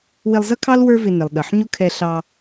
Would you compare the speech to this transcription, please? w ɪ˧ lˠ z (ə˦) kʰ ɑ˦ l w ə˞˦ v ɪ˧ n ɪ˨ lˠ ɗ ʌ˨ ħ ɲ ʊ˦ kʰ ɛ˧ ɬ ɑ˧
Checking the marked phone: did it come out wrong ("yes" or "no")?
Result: yes